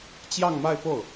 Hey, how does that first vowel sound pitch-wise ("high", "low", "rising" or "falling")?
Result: falling